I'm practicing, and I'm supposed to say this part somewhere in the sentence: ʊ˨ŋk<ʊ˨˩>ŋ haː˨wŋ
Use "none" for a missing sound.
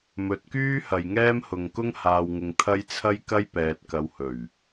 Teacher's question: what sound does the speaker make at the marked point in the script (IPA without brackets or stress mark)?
ʊ˥